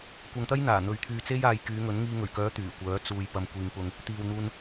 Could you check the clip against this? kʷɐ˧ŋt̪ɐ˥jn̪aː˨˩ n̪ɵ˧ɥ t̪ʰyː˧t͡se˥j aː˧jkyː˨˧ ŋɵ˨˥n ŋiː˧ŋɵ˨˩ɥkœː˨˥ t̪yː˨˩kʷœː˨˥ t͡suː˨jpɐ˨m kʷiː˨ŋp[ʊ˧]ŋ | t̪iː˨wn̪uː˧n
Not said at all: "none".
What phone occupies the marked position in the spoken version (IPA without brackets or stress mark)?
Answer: ʊ˧